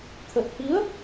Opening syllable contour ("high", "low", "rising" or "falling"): low